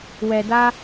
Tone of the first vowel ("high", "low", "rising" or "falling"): low